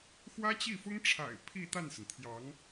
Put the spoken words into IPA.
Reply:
xwä˥t͡ɕi˥˩ fʊ˥ŋʈ͡ʂʰa̰˨˩ɪ̯ pʰi˥˧t̪a˥˩nsə˩nt̪ʰjɑ˧˥ŋ

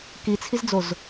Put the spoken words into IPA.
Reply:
kit͡sʰizd͡zoz

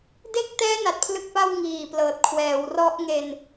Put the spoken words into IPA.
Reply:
de˥˩k̚ tɛː˦˥ na˨˩t̚pʰlɯ˥˩k̚pa˥˩w ŋiː˨˩plɤː˨˩t̚ kʰwɛː˩˦wrɔ˦˥ʔŋe˧n

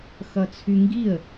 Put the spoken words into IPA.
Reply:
xʌt͡sʰyŋɡiə̯

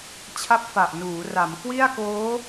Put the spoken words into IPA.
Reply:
t͡ɕʰa˦˥p̚fa˨˩ʔnuː˩˦ra˩˦m kwi˥˩a̯koː˦˥

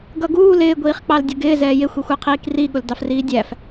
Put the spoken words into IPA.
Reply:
ɡʌɡuːl ɪː ɡʷiːχk͡pɑldʲəɡɪː zɛːjɪ xʷixʷɛqʰiːkri ɠʊldɑfriːdʲæf

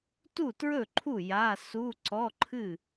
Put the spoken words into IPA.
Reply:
tu˥˩tɹɵ˥˩ǃʰu˥˩ ja˧˥˧ su˧˥˧ ǀɔ˧˥˧ǃʰɨ˥˩

